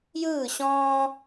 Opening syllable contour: falling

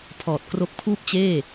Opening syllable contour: low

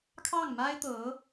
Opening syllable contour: falling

